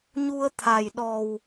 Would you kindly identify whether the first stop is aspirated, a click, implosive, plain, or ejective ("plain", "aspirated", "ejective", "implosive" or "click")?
aspirated